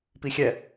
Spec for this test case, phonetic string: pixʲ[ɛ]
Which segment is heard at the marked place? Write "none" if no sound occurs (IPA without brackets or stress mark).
ɛ